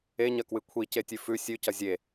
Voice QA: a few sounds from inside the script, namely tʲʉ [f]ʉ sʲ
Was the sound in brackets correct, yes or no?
yes